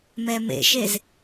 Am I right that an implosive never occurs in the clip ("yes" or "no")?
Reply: yes